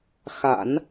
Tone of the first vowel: low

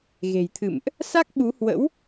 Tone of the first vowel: low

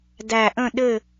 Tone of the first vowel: low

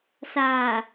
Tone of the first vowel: low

